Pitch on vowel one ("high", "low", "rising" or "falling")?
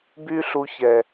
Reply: high